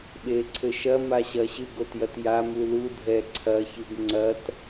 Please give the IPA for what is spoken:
ɓ e ǀʰ ɘ ʃ ɐ m a ɕ ɐ ɕ ɨ ɡ o t j ɐ t j a m u l u dʱ ɛ ǀʰ ɐ ç ɨ ɡ ŋ͡ǀ ɐ t

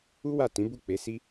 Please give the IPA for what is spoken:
u˦ w a˦˨ t ĩ˨˦ b u˦˨ k͡p e˨˦ s i˦

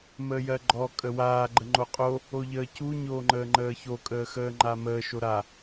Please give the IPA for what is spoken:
m əː j ɜ ɡ͡ǃ ɔ kʼ ə w aː ɡ͡ǃ ə ŋ͡ǃ o qʼ o | o ʎ əː c u ɲ oː ŋ͡ǃ əː ŋ͡ǃ əː ç o kʼ əː x əː ŋ͡ǃ a m əː ʃ o ɾ a

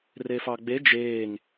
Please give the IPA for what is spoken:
r e f ɑ ɡ͡b e d͡ʒ eː ŋ

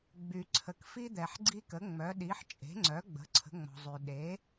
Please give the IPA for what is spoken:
ɡ͡b y˩ ǀʰ ə˩ k f i˦ d̪ ɛ˩ ħ ɡ͡ǀ i˦ k ə˩˥ ŋ͡m œ˩˥ ɗ i˩˥ ħ t͡ʃʼ e̤˩˥ ŋ͡ǀ œ˩˥ ɡ͡b ə̤˩˥ ǀʰ ə̤˩˥ ŋ͡m ɔ̤˩ zˤ y˩ ɗ e˩˥

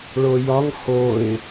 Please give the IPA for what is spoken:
ɭ o j ɒ ŋ h o ɪ̯

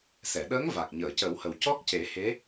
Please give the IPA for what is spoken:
s ɛ˨˩˨ ɗ əː˧˥ ŋ v a˨˩ k̚ ɲ əː˨˩˨ c ə˨˩˦ w h ə˨˩ w c ɔ˦˥ k̚ c e˨˩˦ h e˧˥

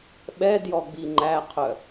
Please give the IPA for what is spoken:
ɓ ɛ d j ɔ ɡ͡b i ŋ͡ǃ æ qʰ œ

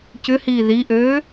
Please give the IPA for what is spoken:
c ʏ h iː ð i ʔ øː

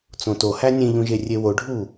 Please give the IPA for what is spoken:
t͡s õ t o h æ nʲ ẽ ʎ ũ ʒ e rʲ e w o ɖʱ u

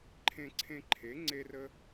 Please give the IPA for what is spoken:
ǃʰ ẽ˧ ǀʰ ẽ˧ ǃʰ e˩˥ ŋ͡ǀ e˥ r ə˥

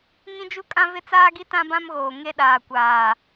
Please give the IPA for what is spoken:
ŋ ĩ˦ d͡ʒ u˦ kʼ ã˦ v ɪ˦ t͡s aː˦ ɡ i˦ t ã˦ b ã˦ m ɣ oː˨ ŋ e˦ ɗ aː˨ kʷ aː˨

